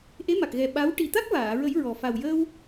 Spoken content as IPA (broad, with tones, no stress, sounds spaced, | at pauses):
ʔ e˧˥ m a˨˩ k̚ ɣ ɛ˨˩ ɓ a˧˥ w ʈ i˨˩ t̪ a˦˥ k̚ v aː˨˩˨ ɹ ə˨˩˦ j ɹ ɔ˨˩ f a˨˩ w j əː˧ w